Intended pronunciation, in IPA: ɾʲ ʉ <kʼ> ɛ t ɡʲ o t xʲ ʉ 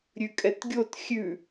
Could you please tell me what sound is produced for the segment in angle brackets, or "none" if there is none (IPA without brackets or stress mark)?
kʼ